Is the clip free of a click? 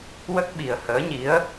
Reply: yes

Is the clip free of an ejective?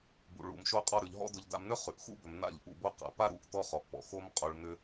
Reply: no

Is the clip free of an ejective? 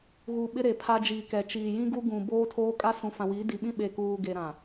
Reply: no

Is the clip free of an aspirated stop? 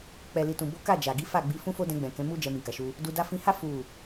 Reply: yes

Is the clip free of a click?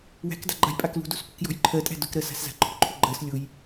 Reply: no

